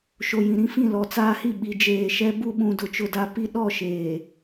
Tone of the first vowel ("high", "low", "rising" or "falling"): low